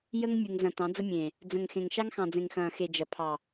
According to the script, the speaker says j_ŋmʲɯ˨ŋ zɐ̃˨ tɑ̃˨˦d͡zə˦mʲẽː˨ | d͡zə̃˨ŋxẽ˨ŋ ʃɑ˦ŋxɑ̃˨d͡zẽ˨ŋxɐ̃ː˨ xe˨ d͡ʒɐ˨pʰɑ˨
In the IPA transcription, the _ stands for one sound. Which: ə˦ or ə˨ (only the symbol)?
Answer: ə˦